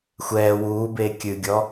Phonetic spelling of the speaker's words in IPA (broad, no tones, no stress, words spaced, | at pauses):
xʷɛː wuːbeː kʲɨɡʲɔ